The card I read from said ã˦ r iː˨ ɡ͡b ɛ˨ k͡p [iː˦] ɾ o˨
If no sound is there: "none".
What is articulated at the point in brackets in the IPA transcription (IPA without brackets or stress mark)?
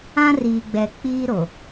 iː˦